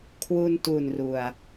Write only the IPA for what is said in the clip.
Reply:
kʰ w u˧ n t u˨˩ n r u˨˩ a̯

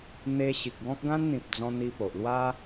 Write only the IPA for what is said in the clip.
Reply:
n̪ e˧ ɕ i˨ k̚ ɡ ɔ̃˦ k̚ ɡ ã˦ n n̪ ĩ˨ p̚ d͡z ɔ̃˧ n̪ i˧ p o˨ ʔ l w a˦

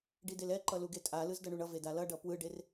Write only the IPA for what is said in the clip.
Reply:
ɖ i d e l ɛ ǃ ʌ l u ɡ e tʼ a l ɯ z d ʌ ɳ u ɳ ʌ v e d a l ʌ ɖ ʌ p w ɯ ɖ e r

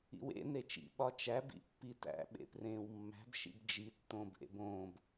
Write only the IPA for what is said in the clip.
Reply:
ḭ w ḛ n e t͡ʃ ḭ ɓ ɒ t͡ʃ æ b ḭ pː i t æ̰ ɓ ḛ p r ẽː w mː æ̤ b ʃ ḭ b d͡ʒ i tː õː b ʔ ḛ b õː b

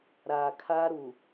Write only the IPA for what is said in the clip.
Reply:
ɾ aː˨ kʰ a˦ ɾ u˨

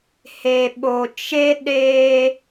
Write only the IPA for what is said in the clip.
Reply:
h e˨ ɓ o˨ t͡ʃ e˦ ɗ eː˦

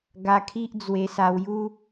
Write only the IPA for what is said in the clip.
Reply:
ɡ a˧ kʰ i˦ ʔ d͡z w e˧ s a˧ w j u˦

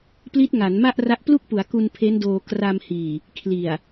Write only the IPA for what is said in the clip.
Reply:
p l i˦˥ t̚ ŋ a˩˦ n m a˥˩ ʔ r a˦˥ ʔ p l u˥˩ k̚ p u˩˦ a̯ k u˧ n pʰ e˦˥ n d oː˧ k r a˧ m h iː˨˩ | kʰ l i˨˩ a̯

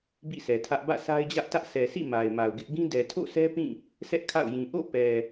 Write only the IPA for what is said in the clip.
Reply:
b ḭ˦˨ s ɛ˨ tʰ ä˦ ʔ b ä̰˦˨ sʰ a˦ ɪ̯ d͡ʑ ä˦ ʔ t ä˦ ʔ s ɛ˨ s ḭ˦˨ m a˨ ɪ̯ m a˨ ʊ̯ ɡ ɪ˦ ʔ ɡ ĩ˦ d ɛ˨ tʰ o̰˦˨ sʰ ɛ˦ p ĩ˦˨ | sʰ ɛ˦ ʔ kʰ a̰˦˨ ʊ̯ j ĩ˨ ʔ o̰˦˨ p ɛ˨

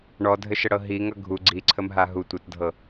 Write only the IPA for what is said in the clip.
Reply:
ɳ ɔ dʱ ɘ ʃ ə ɽ ɤ ɦ i ŋ ʌ ɡʱ u ɡ͡ǀ i ǀʰ ə m ɦ a ɦ u tʷ ʌ t dʱ ɤ

